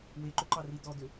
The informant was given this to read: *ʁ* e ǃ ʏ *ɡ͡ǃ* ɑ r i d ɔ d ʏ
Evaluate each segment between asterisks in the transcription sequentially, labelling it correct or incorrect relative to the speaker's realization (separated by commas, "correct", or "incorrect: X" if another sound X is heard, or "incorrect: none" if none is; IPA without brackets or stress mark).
incorrect: w, incorrect: ǃ